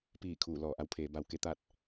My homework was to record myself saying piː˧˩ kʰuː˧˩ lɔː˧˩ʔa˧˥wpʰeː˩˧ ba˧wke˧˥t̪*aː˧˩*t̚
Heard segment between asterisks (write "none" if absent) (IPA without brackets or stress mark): aː˥˨